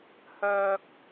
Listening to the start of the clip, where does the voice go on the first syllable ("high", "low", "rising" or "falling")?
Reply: high